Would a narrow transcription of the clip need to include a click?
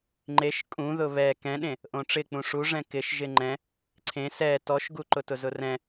yes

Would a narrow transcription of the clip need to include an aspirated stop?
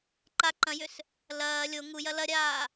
no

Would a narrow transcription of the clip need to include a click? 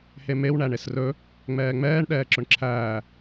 yes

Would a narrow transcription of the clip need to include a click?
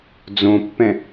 no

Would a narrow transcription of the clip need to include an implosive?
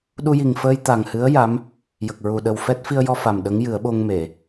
yes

